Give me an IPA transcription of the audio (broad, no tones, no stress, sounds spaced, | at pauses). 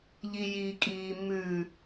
ʎ i j i kʼ iː m ʉ